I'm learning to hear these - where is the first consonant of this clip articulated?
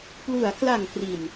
lips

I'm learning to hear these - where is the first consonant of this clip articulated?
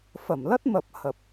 lips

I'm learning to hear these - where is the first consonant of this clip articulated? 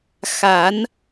velum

